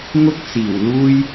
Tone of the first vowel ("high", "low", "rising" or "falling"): high